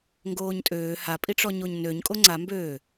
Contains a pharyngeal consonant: no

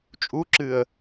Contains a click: yes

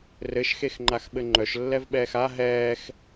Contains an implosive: yes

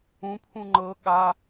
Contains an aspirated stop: yes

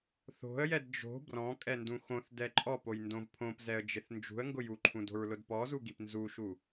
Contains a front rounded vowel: no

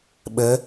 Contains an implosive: yes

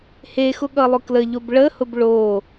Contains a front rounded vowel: no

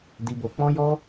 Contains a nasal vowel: yes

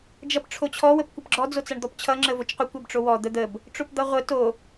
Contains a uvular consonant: yes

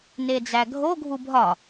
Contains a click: no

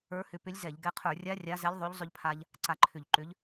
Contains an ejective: no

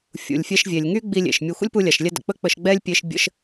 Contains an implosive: no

